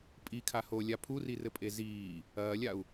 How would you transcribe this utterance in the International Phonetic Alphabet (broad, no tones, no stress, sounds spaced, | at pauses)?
pʼ i kʰ a h o lʲ a pʰ u r i r ɘ pʼ e z iː | ɐː lʲ a u̯